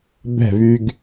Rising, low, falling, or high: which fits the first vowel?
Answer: falling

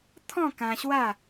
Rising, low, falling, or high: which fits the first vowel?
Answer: falling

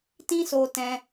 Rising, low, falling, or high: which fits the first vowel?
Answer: high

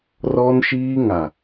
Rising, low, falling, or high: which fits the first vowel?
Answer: high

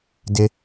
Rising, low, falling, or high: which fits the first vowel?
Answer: high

